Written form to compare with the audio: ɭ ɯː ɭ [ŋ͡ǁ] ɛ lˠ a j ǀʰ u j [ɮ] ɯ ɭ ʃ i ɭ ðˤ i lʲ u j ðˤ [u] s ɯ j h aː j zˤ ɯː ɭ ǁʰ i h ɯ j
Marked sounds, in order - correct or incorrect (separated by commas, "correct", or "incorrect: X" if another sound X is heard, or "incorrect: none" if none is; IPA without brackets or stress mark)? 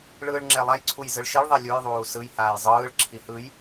correct, incorrect: z, incorrect: uː